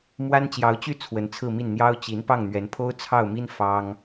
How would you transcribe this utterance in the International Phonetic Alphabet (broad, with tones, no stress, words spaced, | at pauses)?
mwa˥n t͡ɕjɑ˧˥ʊ̯t͡ɕy˥˩ t͡sʰwə˧˥nt͡sʰɹ̩˥˧mi˥˩nn̪jɑ˥ʊ̯ t͡ɕi˧˥n pɑ˥˩ŋn̪ɥɛ˧˥npʰo˥ʊ̯ t͡sʰɑ˥˩ʊ̯mi˥n fɑ˥ŋ